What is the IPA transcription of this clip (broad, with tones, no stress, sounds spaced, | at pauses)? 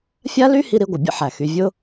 fʲ a˥ l y˥ h i˦ ɾ i˦ ɡʷ ə˩ bʲ ə̰˥ ħ æ˩ x y˨ vʲ ʊ˦